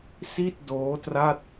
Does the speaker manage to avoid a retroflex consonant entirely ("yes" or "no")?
yes